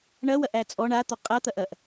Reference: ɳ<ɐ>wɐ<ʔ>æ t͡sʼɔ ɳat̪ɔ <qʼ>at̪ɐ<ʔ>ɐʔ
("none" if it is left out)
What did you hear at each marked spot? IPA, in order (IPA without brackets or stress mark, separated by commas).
ɐ, ʔ, qʼ, ʔ